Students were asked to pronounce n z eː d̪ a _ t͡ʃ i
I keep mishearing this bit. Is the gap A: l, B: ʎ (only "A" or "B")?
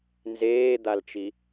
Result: A